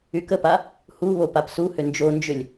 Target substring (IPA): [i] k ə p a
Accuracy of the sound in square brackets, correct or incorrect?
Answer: incorrect